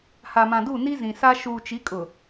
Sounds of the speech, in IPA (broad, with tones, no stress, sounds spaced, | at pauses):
h a˨ m ã˨ d u˦˨ n i˦ z ĩ˨ s a˦ ʃ uː˨ t͡ʃ i˨˦ kʼ ʊ˨